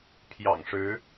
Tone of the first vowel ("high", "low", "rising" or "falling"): low